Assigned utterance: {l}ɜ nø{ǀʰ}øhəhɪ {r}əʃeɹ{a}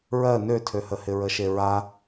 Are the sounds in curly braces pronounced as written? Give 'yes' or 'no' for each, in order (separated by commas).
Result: no, no, no, yes